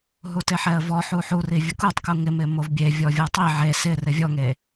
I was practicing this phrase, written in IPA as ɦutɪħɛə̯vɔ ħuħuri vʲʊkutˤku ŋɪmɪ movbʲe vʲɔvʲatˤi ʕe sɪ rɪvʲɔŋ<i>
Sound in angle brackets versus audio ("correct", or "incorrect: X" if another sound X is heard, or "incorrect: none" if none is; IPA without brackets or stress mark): incorrect: e